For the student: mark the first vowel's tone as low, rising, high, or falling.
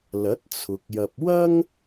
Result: rising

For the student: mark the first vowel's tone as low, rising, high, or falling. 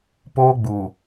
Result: high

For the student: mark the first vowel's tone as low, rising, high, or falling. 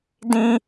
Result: high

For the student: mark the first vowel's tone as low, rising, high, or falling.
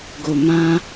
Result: low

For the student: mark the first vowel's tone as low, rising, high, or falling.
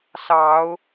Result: rising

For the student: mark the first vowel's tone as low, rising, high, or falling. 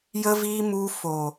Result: high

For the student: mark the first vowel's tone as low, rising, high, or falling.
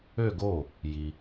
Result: falling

